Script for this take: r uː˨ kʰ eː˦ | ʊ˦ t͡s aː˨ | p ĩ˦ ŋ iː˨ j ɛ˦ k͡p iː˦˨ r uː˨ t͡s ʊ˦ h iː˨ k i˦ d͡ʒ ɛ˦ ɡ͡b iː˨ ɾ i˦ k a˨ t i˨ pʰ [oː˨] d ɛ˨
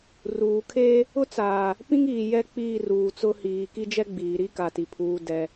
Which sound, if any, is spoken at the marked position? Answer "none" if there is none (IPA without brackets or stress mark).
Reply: uː˨